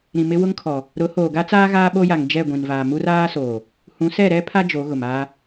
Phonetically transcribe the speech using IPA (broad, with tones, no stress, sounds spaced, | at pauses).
ɾ ĩ˨ m ɪ˦ w ʊ˦ ŋ kʰ ɔ˨ | ɾ ʊ˨˦ h oː˨ ɡ a˦ t͡s aː˦ ɣ aː˦ ɓ o˦ j a˨ ŋ d͡ʒ ɛ˦˨ ɡʷ ĩ˨ n v aː˨ m u˦ r aː˦ s oː˨ | h ũ˨˦ s ɛ˦˨ ɾ ɛ˦ pʰ a˦ d͡ʒ o˨˦ ɣ ʊ˨ m aː˦